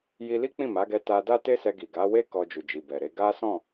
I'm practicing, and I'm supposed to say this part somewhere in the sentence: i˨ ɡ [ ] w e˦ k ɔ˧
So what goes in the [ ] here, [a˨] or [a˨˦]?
a˨˦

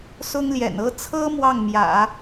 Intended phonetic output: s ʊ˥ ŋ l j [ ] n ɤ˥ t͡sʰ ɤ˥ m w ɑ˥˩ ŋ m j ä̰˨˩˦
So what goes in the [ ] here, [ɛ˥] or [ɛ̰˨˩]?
ɛ̰˨˩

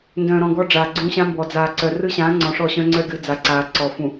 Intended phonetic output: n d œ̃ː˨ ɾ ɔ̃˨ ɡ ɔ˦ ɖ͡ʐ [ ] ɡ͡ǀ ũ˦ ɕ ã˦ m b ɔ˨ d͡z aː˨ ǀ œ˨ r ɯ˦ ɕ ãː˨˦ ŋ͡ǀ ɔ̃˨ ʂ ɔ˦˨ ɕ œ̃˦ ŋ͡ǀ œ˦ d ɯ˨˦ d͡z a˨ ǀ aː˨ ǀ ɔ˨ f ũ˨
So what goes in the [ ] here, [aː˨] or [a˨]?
aː˨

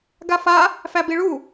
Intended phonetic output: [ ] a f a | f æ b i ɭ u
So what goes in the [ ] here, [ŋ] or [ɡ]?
ɡ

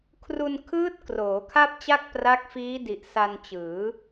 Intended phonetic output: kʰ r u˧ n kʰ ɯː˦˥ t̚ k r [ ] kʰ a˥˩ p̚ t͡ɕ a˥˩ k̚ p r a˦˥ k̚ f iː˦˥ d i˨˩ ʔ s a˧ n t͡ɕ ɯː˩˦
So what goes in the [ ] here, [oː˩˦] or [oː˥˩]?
oː˩˦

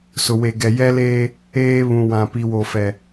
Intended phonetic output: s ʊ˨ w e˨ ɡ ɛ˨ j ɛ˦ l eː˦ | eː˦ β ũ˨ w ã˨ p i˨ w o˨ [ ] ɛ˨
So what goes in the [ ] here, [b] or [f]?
f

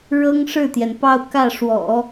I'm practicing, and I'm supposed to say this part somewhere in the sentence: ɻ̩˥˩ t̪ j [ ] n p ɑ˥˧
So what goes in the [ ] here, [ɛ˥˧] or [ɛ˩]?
ɛ˩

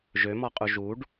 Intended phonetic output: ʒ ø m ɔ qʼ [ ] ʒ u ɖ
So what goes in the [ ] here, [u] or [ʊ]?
u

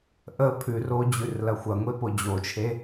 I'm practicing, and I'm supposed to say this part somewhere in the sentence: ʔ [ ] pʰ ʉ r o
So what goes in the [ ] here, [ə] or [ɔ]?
ə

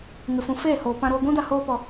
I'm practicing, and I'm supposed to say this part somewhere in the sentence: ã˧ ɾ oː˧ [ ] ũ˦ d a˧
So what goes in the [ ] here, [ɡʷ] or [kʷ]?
ɡʷ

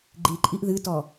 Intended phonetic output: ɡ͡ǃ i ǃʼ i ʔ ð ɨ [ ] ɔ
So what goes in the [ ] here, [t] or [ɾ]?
t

